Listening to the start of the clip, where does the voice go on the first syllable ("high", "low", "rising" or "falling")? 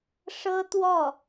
high